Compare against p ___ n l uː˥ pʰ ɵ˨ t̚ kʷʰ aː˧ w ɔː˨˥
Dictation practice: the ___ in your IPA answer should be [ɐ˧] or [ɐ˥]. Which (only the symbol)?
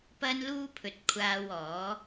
ɐ˥